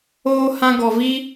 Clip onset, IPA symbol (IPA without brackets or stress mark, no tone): oː